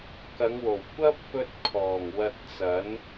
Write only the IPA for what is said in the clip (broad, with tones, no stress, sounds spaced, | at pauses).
k ɐ˨˧ ŋ w o˨˩ w kʷ ɐ˥ p̚ f ɵ˧ t̚ kʰ ɔː˨˩ ŋ w ɐ˧ t̚ t͡s ɐ˨˥ n